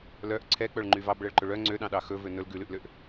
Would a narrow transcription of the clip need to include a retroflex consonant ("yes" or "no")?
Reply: yes